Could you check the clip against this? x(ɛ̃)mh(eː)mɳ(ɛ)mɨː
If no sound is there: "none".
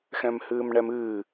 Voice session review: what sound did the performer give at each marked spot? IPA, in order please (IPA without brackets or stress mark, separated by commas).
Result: ɛ̃, ɨː, ɛ